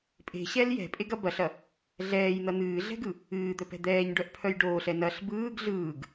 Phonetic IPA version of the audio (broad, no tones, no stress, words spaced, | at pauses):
pʼe̤ɕɛl jɛ̤pʼeɡɐ bɐɬɐ | ɮɛːjn̪ɐ n̪ɨːɮɛ̤ɡɯ | ɨːd̪œpɛ̤ d̪ɛːɲɖœʔpʰœj ɖoːɬɛ nɐɬ bɯːɡ ɮɯːɡ